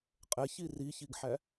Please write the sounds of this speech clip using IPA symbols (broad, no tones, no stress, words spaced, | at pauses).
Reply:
qʼɛçi riçiɡħæ